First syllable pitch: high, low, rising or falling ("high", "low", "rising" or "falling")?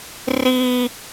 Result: high